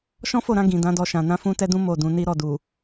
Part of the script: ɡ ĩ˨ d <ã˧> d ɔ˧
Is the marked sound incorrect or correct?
incorrect